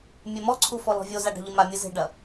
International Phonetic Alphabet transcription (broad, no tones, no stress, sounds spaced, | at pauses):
mʲ ɛ m ɔ ǀʰ u f ɔ l ɔ̤ vʲ o z a ɖ a̤ ʎ ɨ m a mʲ ɨ z e̤ ɖ ɐ